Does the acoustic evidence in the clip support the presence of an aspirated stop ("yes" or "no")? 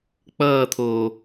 yes